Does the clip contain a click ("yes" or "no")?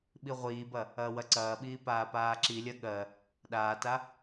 yes